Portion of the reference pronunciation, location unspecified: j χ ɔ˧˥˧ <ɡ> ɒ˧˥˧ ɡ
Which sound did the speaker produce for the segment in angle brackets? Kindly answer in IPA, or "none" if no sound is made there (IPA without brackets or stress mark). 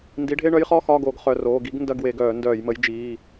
x